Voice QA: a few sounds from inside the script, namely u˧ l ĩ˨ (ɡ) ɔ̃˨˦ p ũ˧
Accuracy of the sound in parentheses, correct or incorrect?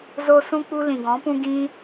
correct